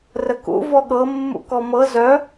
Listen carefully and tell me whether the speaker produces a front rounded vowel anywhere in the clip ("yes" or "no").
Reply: yes